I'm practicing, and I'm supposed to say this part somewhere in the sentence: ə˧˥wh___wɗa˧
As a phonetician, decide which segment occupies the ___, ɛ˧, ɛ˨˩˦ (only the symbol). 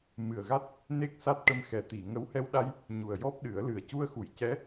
ɛ˧